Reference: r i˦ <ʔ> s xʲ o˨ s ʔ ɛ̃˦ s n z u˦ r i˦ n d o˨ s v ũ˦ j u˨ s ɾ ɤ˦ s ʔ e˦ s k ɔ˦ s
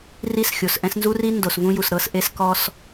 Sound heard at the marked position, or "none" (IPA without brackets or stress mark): none